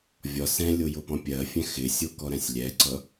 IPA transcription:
vʲ ɒ s ɛ̃ lʲ o j o p ɔ̃ pʲ ɜ fʲ ɛ̃ x ɪ sʲ o k ɔ ɾ ɛ̃ sʲ lʲ ɛ ǀ ʌ

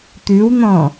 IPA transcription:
t̪ ʉ w n̪ ɔ̃

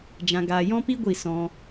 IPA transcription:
d͡ʒ ã˦ ɡ aː˦ j ɔ̃˦ p i˦ ɡʷ i˦˨ s ɔ̃˦

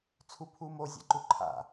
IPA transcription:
t͡sʰ u pʰ u m o zʲ a̰ ǃ u ǃʰ a̰

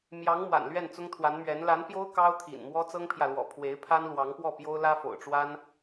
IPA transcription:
m j ɑ˧˥ ŋ m w a̰˨˩ n l ɥ ɛ˥˩ n t͡s ʊ˥ ŋ t̪ʰ w a˧˥ n m ɥ ɛ˧˥ n l a˧˥ n p j o˥ ʊ̯ k ɑ˥ ʊ̯ t̪ʰ ḭ˨˩ n m w ɔ˥ t͡s ɤ˥ ŋ pʰ j ä˨ l w ɔ̰˨˩ pʰ w e˧˥ ɪ̯ pʰ a˥ n l w ɑ˧˥ ŋ p w ɔ˥˩ p j o˥ ʊ̯ l ä˥ f o̰˨˩ ʊ̯ ʈ͡ʂ w a˥ n

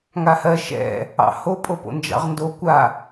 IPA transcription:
ŋ a h ɜ ʃ ɛ̰ | ɑ̰ h o pʼ o p o̰ n d͡ʒ ɑ̰ ʁ n d o kʷ a

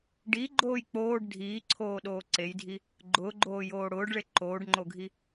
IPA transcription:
ɖ i ɡ͡ǃ oː j k͡p oː ɖ dʱ iː ǀʰ oː ɗ oː ǀ e j dʱ i | ɡ͡ǃ ʊː ɡ͡ǃ oː j oː ɽ ʊː ɖ ɭ e ǃ oː ɖ ŋ͡ǃ o ɡʱ i

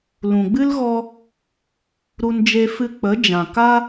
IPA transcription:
l ũ˨ ɡ͡b ɨ˦ l ɣ ɔ˧ | ɾ u˦ n d͡ʒ e˦ f ɨ˦ k͡p ə˨˦ d͡ʒ ã˨ k a˦

